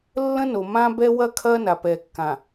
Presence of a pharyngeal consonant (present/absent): absent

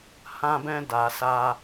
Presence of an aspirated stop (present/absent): absent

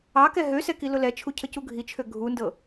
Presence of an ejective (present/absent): absent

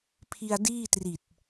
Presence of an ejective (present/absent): absent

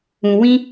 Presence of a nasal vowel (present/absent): present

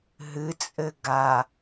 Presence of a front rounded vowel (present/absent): absent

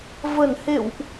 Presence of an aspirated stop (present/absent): absent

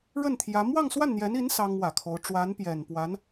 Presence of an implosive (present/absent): absent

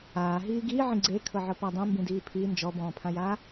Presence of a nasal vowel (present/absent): present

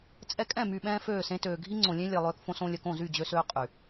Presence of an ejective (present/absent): present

